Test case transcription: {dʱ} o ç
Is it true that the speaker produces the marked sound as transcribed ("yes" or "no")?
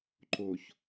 no